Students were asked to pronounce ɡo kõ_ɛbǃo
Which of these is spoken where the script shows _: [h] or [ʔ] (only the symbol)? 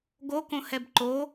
h